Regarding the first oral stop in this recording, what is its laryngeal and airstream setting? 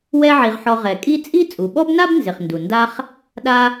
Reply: ejective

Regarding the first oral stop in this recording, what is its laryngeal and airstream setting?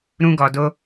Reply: plain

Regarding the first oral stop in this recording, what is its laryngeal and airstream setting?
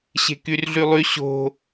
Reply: plain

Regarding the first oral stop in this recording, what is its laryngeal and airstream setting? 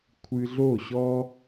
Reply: aspirated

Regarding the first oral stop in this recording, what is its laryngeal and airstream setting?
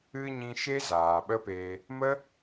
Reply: implosive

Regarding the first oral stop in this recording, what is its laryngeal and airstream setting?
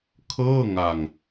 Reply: aspirated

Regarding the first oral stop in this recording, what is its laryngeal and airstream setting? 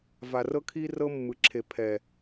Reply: aspirated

